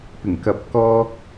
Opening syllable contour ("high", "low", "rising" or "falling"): low